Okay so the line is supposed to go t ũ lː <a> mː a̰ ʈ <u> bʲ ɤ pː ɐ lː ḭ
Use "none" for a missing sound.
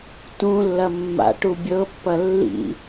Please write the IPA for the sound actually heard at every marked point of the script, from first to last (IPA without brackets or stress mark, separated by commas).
ɐ, u